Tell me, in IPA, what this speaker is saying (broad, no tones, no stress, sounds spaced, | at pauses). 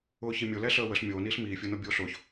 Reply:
ʊː ç i mʲ o l ɛ ɬ əː w ə ɬ mʲ oː n iː ɬ m iː fʲ əː n o bʲ oː ɬ ʊː ç